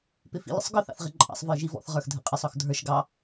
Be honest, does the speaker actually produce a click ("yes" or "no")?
yes